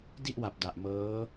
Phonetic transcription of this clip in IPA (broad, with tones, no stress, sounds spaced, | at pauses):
d i˥˩ ʔ w a˨˩ p̚ d a˨˩ ʔ m ɤː˦˥